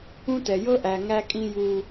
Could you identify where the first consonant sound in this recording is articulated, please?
alveolar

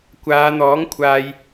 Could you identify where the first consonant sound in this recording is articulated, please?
velar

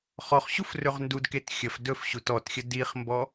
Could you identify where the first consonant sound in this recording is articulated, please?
uvular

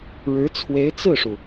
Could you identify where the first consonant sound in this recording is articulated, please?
retroflex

